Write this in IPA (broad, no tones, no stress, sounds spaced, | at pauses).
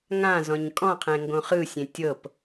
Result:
ŋ ã z ɔ̃ ɲ kʼ ɔ̃ qʰ ɛ̃ ŋ ɡ õ χ ɯ sʲ ẽ tʲ ɤ p